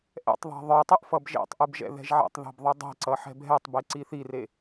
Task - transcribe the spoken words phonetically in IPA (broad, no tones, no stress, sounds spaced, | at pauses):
ʔ ɛ̰ tˤ ðˤ e̤ ðˤ ə˞ tˤ ɨ ʔ f ʌ b ʒ ḛ tˤ ʔ ɨ b ʒ ɛ̰ ð ɛ̤ ʒ ʕ ɛ̰ tˤ ð ɛ̤ b ðˤ ɨ dˤ i̤ ǀ ʌ ħ ɛ̤ b ɦ ɛ tˤ b e ǀ i θ i r e